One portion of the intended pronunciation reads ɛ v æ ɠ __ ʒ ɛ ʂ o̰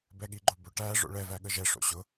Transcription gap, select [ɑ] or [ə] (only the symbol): ə